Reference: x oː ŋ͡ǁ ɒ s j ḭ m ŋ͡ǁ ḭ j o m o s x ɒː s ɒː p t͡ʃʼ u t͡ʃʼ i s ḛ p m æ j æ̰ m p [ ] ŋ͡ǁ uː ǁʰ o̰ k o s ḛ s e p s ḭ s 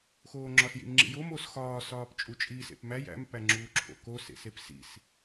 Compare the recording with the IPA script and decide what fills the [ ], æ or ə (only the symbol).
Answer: æ